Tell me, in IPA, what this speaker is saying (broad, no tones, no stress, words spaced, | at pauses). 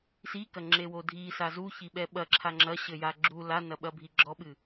sikɐŋ͡ǁewo dʱisa zuçiɓɛ ɓɐǁʰa ŋ͡ǁɐɕɘja ɡ͡ǁu lanɐɓɐbʱi ɡ͡ǁɔɓɨ